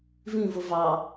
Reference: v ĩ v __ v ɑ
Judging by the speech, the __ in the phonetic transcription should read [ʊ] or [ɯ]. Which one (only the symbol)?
ʊ